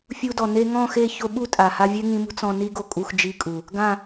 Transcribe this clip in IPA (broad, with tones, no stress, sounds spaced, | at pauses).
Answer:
fʲ u˧ d ɔ˨ n e˧ ŋ ɔ̃˦˨ x e˦˨ ç o˧ ɓ u˦ tʼ a˨ h a˧ vʲ ɛ˦ ŋ ĩ˧ m ṳ˦ t͡s ɔ̃˧ n i˦ ɡ o˧ kʼ u˧ x d͡ʒ i˧ kʼ u˨ | ɡ ã˦˨